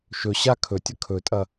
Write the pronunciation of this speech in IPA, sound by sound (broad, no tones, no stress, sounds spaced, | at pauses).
ʃ ɵ ɕ a kʰ ɵ tʲ ɐ kʰ ɵ tʼ ɐ